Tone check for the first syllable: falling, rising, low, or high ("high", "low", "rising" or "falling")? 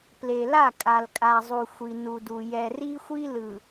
low